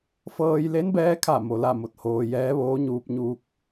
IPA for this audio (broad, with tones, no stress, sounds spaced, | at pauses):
f ɤː˧ j l e˧˥ n b ɛː˧˥ kʰ a˧˩ m o˩ l a˥˨ m o˧ t̚ h oː˧ j ɛː˧˥ ʋ oː˧˥ ɲ uː˧ p̚ ɲ uː˧ k̚